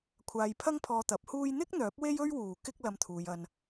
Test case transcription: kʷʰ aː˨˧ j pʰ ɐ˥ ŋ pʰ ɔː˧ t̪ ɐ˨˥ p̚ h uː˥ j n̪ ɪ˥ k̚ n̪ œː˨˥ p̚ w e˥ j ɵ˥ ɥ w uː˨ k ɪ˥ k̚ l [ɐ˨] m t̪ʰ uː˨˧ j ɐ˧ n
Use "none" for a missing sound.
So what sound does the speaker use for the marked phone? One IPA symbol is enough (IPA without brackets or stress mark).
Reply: ɐ˧